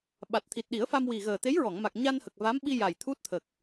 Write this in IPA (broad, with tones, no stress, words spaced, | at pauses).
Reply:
ɓa˨˩t̚ t̪ʰi˨˩t̚ɗi˨˩˦ə̯fa˧m wi˨˩ ɣəː˨˩t̪e˧˥jɹɔ˨˩˨ŋma˨˩k̚ ɲa˧nhə˨˩k̚ va˧˥m ɓi˧ ja˨˩j t̪ʰu˦˥t̚t̪ʰə˨˩k̚